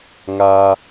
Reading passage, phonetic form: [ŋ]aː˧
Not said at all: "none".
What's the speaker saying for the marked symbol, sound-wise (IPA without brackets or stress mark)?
ŋ